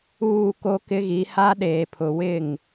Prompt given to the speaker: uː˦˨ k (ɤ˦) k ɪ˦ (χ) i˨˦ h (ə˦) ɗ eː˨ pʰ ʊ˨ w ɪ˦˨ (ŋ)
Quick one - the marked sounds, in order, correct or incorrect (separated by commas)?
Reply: incorrect, incorrect, incorrect, correct